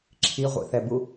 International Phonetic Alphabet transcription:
ǁʰiʁʷḭθɛbu

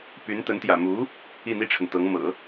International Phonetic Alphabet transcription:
py˧˥nt̪ə˧˥n t̪jä̰˨˩ mu˧˥ | i˥˩n̪i˥ʈ͡ʂʰə˨nt̪ɤ˧˥ŋ mɤ̰˨˩˦

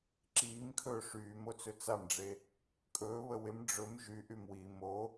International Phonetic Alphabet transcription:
ǁiːmkʰɵː ʂyːmot͡sɵ t͡samɖ͡ʐe | kʼɵːβə wɪm ɖ͡ʐɵm ʒyʔym wi mo

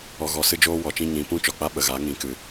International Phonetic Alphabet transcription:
ɔ˨ɣɔ˨sɨ˧d͡ʒoː˧ wɔ˨t͡ʃĩ˧ ɲĩ˨˦pũ˦ t͡ʃɔ˨k͡pa˦ ɓə˨ɣa˨˦ ŋĩ˨kɨ˨

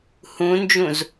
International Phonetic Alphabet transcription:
hũnd͡ʒũz

